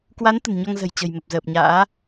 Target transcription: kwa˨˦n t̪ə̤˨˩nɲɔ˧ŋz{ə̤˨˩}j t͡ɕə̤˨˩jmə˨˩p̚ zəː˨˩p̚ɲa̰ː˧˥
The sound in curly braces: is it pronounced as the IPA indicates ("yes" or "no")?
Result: yes